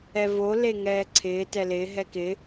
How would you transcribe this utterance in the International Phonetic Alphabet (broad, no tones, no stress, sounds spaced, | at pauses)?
ɛ v o l e ŋ ɛː ǀʰ ɪː t ɛ l ɪː ɦ ɛ k ɪ